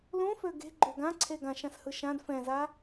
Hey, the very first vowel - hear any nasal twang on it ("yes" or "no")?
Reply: yes